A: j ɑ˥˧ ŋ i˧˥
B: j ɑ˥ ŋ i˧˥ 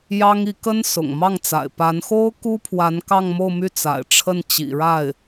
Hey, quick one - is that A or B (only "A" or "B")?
B